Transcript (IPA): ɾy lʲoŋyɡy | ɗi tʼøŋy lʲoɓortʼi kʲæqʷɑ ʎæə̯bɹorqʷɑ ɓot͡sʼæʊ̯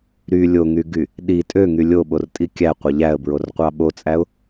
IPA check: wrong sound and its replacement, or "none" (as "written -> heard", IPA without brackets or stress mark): none